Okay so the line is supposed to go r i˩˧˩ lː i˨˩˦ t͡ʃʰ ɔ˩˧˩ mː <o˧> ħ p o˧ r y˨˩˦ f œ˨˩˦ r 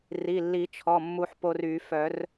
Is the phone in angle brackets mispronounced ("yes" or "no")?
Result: yes